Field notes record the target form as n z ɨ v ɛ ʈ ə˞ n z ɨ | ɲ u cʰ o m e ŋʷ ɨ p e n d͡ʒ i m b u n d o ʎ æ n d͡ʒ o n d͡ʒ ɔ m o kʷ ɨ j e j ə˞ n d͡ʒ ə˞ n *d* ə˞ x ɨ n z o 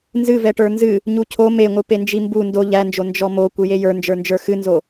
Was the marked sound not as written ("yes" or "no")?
yes